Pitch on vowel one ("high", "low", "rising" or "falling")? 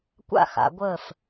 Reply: falling